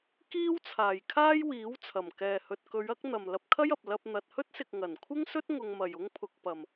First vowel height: high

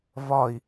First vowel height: low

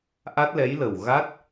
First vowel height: low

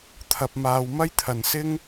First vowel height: low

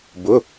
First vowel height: high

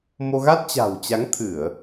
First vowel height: mid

